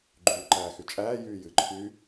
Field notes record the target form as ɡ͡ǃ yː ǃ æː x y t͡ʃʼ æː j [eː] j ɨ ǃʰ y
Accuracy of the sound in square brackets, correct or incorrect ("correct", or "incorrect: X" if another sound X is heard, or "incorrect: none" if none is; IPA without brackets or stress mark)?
incorrect: yː